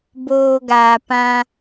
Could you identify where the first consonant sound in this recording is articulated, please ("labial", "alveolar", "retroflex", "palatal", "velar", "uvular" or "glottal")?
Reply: labial